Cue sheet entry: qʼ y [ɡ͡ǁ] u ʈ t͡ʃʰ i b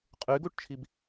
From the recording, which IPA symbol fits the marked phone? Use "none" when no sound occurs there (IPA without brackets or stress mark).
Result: ɡ